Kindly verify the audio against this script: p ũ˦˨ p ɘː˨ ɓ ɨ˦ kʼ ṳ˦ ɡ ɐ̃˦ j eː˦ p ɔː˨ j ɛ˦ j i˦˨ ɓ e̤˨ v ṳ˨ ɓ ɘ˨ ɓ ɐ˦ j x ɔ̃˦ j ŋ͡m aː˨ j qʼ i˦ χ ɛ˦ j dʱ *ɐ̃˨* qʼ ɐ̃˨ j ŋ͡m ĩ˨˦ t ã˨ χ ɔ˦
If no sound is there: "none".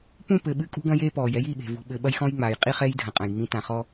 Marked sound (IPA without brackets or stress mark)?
ɐ̃˨